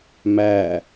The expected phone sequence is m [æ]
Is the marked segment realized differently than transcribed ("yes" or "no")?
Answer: no